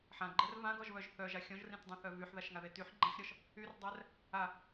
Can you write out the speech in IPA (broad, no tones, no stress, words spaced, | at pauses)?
ħãɡ͡ǃɛr vãɡɔʒβœʒ θœʒa xʲɔ̃ʒrĩtdˤɛ̃θœ vyħðaʃŋaðe tyħ ɡ͡ǃãħɾʲɔʃ | yrdˤɛr | a